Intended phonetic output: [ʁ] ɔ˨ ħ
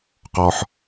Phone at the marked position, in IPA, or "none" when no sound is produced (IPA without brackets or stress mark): q